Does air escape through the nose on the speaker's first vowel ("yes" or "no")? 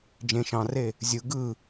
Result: yes